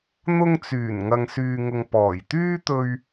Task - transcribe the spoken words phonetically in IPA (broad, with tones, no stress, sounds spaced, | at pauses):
n̪ ʊ˧ ŋ t͡s yː˨˩ n ŋ ɐ˨ ŋ s yː˨ ŋ ʊ˨ ŋ p ɔː˨˩ j t̪ yː˥ t̪ ɵ˧ ɥ